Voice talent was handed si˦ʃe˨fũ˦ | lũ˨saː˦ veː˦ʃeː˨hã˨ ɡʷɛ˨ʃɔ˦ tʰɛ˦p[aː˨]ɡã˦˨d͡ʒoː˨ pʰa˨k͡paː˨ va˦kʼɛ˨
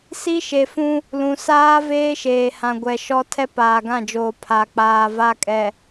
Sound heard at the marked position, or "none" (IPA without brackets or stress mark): aː˨